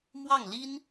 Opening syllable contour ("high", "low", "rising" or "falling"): falling